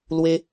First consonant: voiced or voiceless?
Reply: voiced